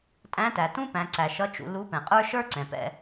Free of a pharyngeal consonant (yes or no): yes